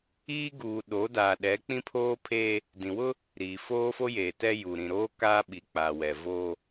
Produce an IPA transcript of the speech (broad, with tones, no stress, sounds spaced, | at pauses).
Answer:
iː˦ ɡ uː˨ ɗ o˨˦ d a˨ ɗ ɛ˨˦ k͡p ĩ˦ pʰ oː˦ pʰ eː˦ | d ĩ˨ w ʊ˦ | ɾ iː˨ f oː˦ f o˦ j eː˨ t ɛ˦ j u˨ ɾ ĩ˨ ɾ oː˦ k a˦ ɓ i˨ k͡p a˨ w ɛ˨ v oː˦